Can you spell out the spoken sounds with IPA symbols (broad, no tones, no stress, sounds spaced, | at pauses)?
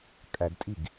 kʼ æ d tʼ i ɡ